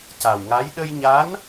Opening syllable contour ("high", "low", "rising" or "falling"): low